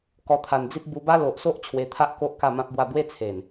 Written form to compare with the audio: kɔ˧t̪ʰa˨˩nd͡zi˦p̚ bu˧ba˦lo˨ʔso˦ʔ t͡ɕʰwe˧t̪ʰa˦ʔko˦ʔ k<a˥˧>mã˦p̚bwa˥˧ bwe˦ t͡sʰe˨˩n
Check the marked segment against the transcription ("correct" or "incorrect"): correct